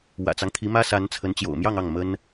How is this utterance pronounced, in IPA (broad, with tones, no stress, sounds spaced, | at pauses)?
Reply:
w ä̰˨˩ t͡s ɑ˦ ŋ t̪ʰ i˧˥ m ä˥ s a˧˥ n t͡sʰ ə˧˥ n t͡ɕ j o̰˨˩ ʊ̯ m j ɑ˥˧ ŋ ɑ˥˩ ŋ m ə˥ n